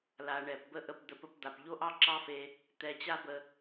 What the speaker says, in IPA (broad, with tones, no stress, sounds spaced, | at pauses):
l a˨ ɳ ɛ˨ p b ə˦˨ ʔ ə˧ p d̪ ə˧ p ə˧ p d̪ a˨ p ʎ o˦ ʔ ɑ˦ ǁ ɑ˦ f e˧ | t̪ ɛ˧ t͡ɕ a˦ b ə˧